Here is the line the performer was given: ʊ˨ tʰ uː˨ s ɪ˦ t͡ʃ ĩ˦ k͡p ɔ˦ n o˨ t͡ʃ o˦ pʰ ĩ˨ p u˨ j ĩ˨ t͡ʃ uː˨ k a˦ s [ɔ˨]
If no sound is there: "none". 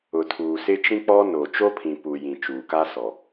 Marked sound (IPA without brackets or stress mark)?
ɔ˨